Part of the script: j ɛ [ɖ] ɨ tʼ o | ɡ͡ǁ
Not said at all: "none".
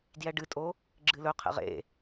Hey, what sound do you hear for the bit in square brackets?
ɖ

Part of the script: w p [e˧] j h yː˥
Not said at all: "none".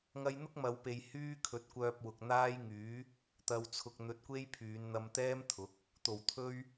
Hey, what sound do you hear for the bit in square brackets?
e˨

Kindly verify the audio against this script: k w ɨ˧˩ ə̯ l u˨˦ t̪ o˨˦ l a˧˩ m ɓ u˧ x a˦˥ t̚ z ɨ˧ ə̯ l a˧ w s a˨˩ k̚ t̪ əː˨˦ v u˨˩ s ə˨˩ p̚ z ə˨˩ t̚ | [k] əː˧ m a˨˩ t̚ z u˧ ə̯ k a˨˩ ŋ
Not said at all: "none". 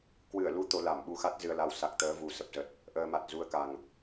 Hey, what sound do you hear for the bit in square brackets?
ʔ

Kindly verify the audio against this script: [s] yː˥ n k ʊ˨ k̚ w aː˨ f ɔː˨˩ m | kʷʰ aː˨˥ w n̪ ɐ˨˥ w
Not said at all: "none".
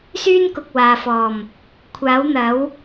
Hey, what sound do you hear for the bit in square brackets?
s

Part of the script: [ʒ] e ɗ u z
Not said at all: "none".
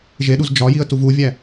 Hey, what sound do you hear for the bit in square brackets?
ʒ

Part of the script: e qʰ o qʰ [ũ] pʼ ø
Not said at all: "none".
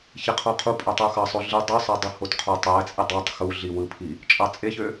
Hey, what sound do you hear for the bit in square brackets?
u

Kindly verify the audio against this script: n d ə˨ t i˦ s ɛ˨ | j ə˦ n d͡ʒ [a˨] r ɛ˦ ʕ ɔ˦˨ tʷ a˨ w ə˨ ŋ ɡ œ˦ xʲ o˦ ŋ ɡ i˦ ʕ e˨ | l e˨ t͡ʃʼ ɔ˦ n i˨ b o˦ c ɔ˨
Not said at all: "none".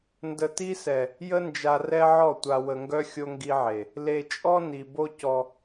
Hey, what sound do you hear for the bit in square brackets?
a˨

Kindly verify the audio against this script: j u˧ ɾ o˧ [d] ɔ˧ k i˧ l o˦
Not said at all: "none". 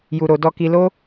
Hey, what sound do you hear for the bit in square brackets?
d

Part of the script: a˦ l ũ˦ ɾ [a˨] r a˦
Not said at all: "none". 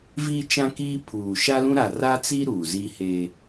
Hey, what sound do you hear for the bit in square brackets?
a˨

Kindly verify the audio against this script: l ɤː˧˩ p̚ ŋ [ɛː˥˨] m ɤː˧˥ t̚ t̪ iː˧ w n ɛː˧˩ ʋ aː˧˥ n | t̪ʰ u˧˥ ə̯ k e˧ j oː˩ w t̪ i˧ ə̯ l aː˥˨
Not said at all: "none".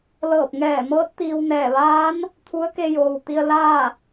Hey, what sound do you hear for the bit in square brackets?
ɛː˧˩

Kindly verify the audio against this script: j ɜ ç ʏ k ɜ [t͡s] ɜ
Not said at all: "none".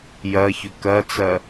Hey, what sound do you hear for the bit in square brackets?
t͡s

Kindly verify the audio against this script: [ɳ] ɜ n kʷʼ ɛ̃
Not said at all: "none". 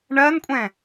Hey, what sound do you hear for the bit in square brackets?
ɳ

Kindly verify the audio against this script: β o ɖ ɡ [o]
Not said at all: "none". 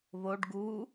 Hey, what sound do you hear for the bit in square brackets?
u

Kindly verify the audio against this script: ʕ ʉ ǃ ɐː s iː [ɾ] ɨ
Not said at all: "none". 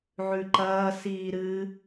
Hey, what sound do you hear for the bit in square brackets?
ɾ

